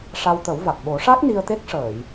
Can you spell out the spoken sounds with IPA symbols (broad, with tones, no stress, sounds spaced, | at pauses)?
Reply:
ʂ a˧ w t̪ ə˨˩˦ w v a˨˩ k̚ ɓ o˨˩˦ ʂ a˦˥ k̚ n i˧ ə̯ t̪ e˦˥ k̚ ʂ əː˨˩˨ j